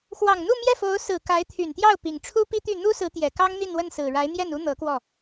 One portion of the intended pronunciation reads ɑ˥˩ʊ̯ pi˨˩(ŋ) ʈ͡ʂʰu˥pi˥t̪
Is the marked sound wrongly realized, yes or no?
no